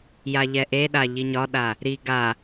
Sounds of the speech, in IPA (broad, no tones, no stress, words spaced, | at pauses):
jaʎɛʔeɗa ʎiɲɒɗa | ɾi ɡa